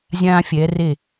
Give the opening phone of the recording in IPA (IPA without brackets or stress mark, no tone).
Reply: zʲ